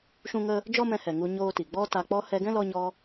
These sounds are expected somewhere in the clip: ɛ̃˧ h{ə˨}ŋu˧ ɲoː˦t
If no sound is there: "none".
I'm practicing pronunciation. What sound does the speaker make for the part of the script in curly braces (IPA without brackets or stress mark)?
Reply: ɛ˨